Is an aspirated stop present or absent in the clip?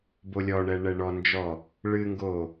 absent